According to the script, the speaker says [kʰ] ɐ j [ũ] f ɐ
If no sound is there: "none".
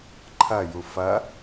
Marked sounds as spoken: ǃʰ, u

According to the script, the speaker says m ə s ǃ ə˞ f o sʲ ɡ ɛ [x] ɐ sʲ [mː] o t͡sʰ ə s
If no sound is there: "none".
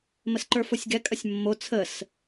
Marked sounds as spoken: kʼ, mː

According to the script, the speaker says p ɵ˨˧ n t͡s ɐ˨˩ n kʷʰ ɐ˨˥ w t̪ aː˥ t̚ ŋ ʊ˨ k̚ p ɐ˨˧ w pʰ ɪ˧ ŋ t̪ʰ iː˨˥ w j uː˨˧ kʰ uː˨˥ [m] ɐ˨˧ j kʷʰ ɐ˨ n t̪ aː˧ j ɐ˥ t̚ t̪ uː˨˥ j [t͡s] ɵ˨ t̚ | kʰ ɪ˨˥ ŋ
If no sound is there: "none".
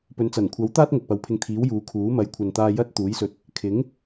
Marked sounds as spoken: m, s

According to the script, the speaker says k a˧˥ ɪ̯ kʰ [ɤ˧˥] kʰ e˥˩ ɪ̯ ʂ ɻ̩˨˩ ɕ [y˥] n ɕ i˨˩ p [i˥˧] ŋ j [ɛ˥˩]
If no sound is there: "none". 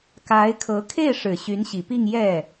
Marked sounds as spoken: ɤ˧˥, y˧˥, i˥˧, ɛ˥˩

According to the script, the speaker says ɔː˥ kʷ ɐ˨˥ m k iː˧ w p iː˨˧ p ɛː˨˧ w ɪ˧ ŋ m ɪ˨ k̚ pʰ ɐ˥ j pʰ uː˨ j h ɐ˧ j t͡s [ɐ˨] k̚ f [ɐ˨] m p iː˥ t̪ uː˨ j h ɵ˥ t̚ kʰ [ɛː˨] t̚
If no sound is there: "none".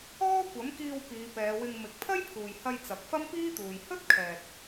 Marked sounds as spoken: ɐ˨, ɐ˥, ɛː˨

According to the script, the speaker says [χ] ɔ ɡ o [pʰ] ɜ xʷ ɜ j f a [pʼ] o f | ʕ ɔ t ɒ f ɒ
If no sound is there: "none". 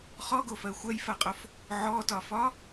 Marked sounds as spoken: χ, f, qʼ

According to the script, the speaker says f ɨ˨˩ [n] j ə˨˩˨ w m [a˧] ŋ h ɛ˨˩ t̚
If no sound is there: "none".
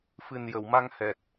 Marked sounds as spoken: n, a˧

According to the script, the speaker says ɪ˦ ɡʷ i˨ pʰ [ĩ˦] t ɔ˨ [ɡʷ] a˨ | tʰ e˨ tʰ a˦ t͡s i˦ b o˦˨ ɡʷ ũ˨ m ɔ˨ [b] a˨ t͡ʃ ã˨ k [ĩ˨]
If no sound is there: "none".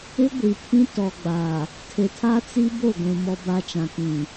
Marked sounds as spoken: ĩ˦, ɡ͡b, b, ĩ˨

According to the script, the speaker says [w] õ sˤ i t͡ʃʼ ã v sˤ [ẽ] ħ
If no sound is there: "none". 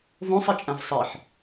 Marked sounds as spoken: v, e

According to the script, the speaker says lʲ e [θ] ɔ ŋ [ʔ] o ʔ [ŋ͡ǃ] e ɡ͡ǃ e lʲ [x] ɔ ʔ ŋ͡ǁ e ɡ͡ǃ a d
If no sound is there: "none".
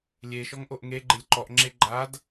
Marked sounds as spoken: ʃ, ʔ, ŋ, ǃ

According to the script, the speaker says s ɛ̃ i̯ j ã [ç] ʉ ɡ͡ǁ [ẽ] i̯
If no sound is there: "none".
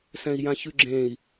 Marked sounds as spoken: ç, ẽ

